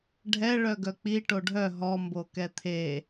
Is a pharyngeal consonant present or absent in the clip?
absent